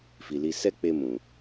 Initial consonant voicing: voiceless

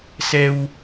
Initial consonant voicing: voiceless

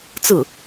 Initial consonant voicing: voiceless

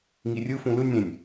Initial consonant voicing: voiced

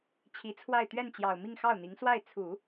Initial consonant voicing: voiceless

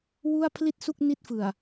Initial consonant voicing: voiced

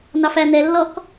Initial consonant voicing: voiced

